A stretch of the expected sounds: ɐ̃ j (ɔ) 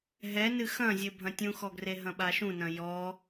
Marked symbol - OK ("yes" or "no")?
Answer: yes